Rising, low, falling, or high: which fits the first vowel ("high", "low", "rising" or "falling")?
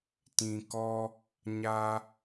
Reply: low